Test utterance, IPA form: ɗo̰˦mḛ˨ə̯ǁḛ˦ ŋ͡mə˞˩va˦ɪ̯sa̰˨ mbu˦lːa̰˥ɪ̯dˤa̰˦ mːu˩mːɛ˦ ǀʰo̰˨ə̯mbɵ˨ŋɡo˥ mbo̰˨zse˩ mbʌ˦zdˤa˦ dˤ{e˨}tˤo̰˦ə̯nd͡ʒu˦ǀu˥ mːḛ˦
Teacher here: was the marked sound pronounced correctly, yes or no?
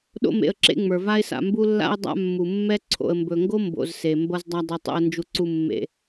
no